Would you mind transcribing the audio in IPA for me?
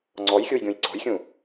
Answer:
ŋ͡ǀ ɔ j xʲ u j ɡʲ ũ j ǀ ɔ̤ j xʲ ũ

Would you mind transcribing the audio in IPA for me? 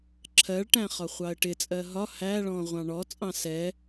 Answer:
ǁʰ ɜ ɭ ʈ æ̃ χ ɒ χʷ ɑ ə̯ ʈ ɪ t͡sʼ ɜ ɦ ɒ h æ ɭ ɔ̃ ʁʷ ɑ̃ ɳ ɔ t͡sʼ ɑ̃ s ɛ

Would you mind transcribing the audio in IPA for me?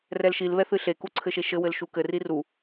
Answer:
r ɛ l ʃ i l β ɛ θ ɨ ɬ e k u ǀʰ ɘ ʃ e ʃ ɘ w ɘ l ʃ u k ɘ r i r u

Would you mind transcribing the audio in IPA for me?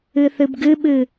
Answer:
ɨ θ ɨ b ɡ ɨ ɓ ɨ

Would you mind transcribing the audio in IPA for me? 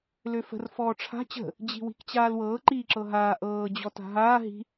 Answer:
l ø f ə̤ r f ɔː ʈ͡ʂʰ a̤ t͡ɕ ə̤ | d͡ʑ i̤ w i̤ k t͡ɕ aː l w ɤː ǃ iː ǁ ɤ ɦ aː ʔ ɤː d͡ʑ ɔ t a̤ ɦ aː ɦ i̤

